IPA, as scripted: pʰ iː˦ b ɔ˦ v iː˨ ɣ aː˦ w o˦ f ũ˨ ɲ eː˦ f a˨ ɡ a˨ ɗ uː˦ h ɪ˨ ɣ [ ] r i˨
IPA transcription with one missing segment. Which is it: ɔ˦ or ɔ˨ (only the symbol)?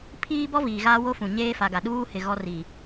ɔ˦